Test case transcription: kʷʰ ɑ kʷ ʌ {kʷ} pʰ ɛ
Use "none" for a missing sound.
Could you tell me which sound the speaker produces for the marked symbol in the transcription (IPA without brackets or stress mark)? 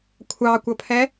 none